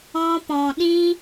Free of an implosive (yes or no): no